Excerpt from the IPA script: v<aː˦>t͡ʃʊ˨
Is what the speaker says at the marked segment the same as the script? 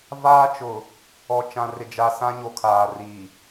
yes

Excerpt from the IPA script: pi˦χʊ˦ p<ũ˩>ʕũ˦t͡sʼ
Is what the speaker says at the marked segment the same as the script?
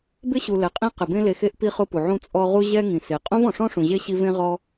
no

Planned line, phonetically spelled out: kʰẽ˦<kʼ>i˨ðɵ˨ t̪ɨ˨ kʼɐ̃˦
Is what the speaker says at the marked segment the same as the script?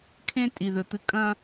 no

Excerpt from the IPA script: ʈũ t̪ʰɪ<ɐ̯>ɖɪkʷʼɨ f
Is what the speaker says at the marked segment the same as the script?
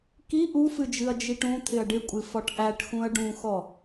yes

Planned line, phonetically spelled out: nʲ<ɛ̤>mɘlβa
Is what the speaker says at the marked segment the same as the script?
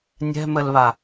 yes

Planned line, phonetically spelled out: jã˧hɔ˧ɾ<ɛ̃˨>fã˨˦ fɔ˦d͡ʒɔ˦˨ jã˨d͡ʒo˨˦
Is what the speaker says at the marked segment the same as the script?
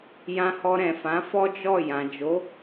yes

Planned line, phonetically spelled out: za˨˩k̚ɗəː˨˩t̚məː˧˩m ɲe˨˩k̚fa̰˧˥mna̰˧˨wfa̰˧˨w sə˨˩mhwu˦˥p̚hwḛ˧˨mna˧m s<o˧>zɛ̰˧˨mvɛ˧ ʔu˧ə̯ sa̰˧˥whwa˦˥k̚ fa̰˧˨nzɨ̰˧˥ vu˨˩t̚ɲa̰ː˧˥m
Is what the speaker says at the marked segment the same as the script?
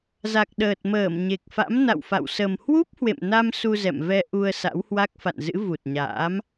no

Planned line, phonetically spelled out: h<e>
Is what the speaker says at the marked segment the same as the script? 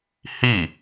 no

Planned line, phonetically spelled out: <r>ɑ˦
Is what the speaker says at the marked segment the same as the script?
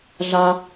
no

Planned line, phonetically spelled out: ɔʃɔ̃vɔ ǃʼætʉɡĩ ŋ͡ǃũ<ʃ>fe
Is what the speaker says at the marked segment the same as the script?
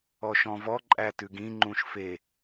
yes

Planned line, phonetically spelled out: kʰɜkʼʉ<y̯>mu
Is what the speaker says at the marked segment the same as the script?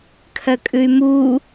yes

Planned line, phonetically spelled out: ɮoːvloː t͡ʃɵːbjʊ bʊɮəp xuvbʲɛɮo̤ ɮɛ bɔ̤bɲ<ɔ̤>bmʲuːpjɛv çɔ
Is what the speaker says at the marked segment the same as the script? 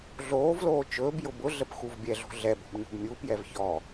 no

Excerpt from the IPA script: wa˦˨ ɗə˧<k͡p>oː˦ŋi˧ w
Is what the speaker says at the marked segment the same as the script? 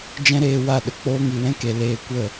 yes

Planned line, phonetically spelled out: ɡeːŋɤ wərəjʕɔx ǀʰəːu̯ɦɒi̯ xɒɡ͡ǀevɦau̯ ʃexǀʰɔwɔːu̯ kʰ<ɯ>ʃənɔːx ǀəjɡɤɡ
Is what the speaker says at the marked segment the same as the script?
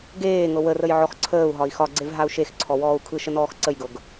yes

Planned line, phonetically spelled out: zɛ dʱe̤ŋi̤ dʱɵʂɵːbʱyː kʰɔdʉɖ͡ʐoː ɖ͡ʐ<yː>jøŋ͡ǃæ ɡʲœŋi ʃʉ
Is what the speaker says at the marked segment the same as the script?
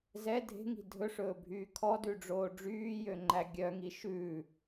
yes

